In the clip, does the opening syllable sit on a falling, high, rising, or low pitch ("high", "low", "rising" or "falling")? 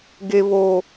low